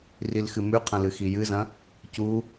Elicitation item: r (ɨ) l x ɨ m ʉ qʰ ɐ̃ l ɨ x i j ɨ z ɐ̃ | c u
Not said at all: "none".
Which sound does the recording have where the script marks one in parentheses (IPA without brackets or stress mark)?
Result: i